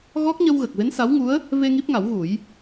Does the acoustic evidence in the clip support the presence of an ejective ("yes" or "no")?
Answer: no